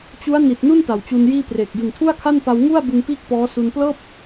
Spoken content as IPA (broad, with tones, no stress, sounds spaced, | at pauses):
t͡ɕ u˦˥ a̯ n i˨˩ t̚ n u˥˩ n t a˨˩ w t͡ɕ u˧ n j iː˥˩ p r eː˨˩ k̚ d ɯ˨˩ ŋ tʰ u˥˩ a̯ kʰ a˥˩ n p a˧ w ŋ u˥˩ a̯ b ɯ˧ ŋ p iː˥˩ k̚ p ɔː˦˥ s u˧ n p l ɤː˥˩ p̚